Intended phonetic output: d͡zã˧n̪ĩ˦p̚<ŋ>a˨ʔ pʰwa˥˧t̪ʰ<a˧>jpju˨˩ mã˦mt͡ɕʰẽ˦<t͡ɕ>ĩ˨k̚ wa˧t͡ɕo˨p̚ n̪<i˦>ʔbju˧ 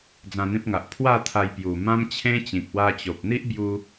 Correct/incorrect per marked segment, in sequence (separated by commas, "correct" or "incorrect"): correct, correct, correct, correct